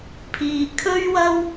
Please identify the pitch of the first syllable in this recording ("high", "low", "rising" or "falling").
low